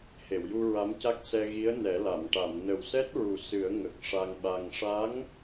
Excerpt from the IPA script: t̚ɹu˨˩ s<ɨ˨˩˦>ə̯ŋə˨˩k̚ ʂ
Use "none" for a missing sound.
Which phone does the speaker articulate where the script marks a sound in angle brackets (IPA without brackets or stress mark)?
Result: ɨ˨˩˦